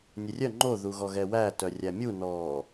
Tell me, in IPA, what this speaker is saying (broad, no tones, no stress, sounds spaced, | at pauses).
nʲ e rʲ œ ŋ͡ǃ o ð u ɣ ɔ ɣ ɛ w æ t œ rʲ æ mʲ u n ɔː